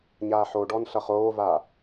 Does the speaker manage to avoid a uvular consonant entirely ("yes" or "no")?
no